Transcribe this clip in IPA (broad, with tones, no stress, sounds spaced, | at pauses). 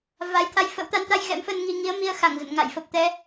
v a˨˦ j t̪ʰ a˨˦ j f ə̰˧˥ w t̪ a˨˦ n t̪ a˧ j ɣ ɛ̰˧˥ m f ə˧ n ŋ i˧ ŋ i˨˦ ə̯ m i˧ ə̯ x a˧˩ ŋ z ə̰˧˨ n ŋ a̰˧˨ j f ə˨˩ p̚ t̪ ɛ˧